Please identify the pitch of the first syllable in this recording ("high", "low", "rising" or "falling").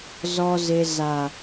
low